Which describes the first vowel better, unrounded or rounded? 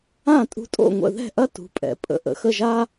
unrounded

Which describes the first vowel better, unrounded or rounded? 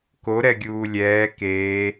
rounded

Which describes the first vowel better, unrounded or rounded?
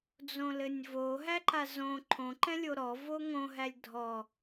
rounded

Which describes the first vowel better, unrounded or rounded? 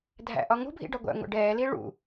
unrounded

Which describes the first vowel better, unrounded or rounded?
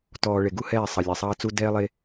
rounded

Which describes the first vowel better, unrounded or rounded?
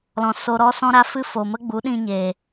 rounded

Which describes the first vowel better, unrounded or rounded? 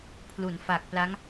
rounded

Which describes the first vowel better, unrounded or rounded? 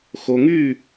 rounded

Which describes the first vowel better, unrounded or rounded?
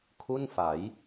rounded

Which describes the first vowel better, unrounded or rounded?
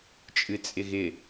unrounded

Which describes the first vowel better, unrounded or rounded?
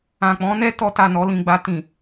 unrounded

